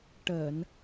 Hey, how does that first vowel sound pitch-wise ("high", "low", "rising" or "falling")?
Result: low